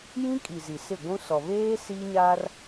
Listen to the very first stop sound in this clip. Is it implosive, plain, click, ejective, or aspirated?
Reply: ejective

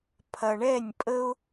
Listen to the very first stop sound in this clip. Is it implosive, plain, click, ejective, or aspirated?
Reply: aspirated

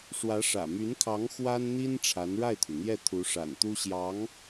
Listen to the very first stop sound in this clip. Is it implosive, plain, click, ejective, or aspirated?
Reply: aspirated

